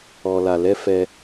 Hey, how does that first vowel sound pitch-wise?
low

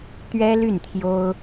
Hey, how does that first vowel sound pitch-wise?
high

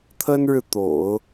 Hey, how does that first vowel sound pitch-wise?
high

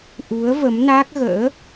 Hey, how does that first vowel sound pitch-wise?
rising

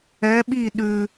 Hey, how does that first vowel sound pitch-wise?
rising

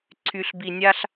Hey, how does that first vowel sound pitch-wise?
low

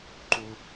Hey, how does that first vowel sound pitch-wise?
low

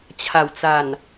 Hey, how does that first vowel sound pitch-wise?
low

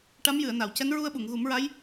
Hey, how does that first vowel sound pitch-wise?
rising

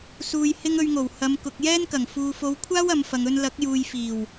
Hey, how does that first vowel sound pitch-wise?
low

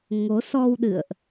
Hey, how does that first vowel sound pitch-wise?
rising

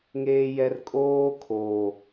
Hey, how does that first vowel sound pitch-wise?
low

